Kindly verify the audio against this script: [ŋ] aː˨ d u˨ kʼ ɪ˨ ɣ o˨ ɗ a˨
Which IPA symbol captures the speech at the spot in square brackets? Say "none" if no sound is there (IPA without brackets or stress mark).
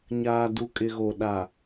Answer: ɲ